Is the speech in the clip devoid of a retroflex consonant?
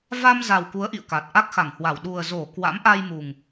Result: yes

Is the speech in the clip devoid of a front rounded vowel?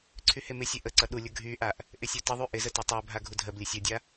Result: no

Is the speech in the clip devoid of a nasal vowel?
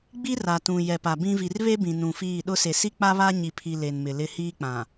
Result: no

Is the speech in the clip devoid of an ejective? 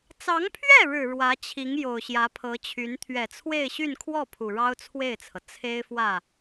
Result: yes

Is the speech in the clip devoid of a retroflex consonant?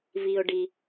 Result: no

